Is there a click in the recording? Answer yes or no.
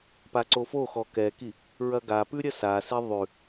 yes